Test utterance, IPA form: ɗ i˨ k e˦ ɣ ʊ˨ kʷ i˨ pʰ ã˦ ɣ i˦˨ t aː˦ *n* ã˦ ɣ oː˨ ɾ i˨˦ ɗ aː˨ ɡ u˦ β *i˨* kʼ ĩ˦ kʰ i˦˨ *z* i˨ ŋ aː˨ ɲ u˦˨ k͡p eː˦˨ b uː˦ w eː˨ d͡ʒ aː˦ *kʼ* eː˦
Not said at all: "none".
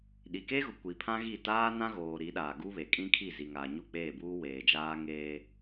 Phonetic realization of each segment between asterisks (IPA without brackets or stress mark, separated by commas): n, e˨, z, ŋ